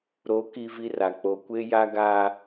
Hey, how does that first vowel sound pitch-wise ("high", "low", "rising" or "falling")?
rising